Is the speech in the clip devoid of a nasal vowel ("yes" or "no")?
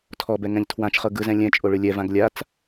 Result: no